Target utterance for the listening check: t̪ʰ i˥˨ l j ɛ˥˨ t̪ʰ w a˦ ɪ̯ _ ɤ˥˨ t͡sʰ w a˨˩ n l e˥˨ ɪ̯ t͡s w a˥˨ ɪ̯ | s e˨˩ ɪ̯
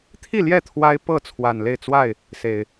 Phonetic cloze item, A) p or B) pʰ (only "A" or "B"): A